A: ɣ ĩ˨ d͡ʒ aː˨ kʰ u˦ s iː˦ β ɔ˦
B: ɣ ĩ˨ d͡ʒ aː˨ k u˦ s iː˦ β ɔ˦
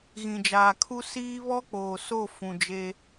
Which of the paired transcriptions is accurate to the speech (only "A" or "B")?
A